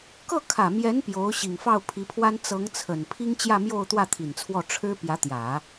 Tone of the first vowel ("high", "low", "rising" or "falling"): falling